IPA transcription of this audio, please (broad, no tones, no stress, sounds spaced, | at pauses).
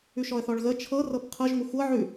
ʉ ʃ ɔ ə̯ θ ɔ ɭ ɣ ə t͡ʃʰ ɤ r ɤ p qʰ ɤ ʒ ŋʷ ə xʷ ɤ ʕ ʉ